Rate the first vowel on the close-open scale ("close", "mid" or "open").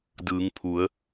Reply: close